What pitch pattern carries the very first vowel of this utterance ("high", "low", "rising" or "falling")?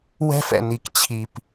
high